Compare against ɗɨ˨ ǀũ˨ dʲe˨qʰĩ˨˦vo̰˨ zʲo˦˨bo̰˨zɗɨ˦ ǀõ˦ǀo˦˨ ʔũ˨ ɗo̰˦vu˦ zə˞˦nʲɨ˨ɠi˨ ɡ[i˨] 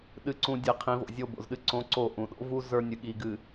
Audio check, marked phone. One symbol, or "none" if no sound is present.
ɨ˨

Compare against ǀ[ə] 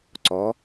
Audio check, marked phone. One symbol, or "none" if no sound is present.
ɔ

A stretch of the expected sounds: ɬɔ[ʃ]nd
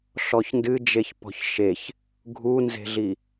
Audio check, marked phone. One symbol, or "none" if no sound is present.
ç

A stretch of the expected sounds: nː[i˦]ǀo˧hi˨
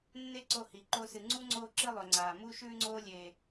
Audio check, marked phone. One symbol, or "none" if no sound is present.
e˦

